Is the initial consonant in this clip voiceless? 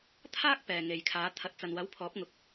yes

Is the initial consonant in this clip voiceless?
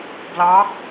no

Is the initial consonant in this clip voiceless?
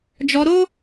no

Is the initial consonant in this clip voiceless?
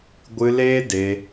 no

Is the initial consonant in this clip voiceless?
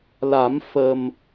no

